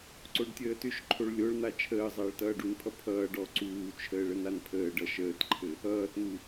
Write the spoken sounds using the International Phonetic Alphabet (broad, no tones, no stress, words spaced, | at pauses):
ǀoɖtʲəːtʏʃǃʰoɭ lʲoɭn̪a t͡ʃʰəːzˤʌːɭ tʌːɖunpʰʌ pʰʌːɖ ɔ ǀuːt͡ʃʰəːɭ ənanpʰəːɖʌ ʃəːtǃʰɘ | ʌːtn̪u